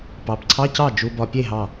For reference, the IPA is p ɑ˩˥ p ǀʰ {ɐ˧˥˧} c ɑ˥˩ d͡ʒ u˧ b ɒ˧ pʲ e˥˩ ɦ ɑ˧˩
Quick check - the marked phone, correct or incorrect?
incorrect